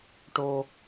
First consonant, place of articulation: retroflex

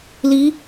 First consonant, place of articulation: alveolar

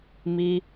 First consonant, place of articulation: labial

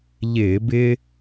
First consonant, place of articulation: palatal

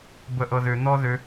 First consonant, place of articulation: labial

